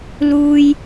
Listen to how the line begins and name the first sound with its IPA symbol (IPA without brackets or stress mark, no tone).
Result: l